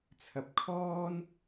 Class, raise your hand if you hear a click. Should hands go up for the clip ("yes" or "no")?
no